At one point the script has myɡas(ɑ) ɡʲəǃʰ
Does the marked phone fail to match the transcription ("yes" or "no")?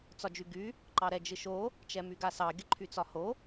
no